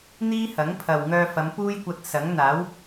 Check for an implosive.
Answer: absent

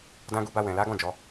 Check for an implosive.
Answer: absent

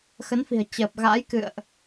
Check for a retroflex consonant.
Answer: absent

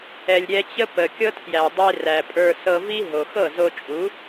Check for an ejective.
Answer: present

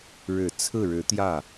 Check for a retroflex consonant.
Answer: present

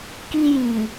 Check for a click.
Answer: absent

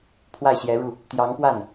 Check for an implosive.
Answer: absent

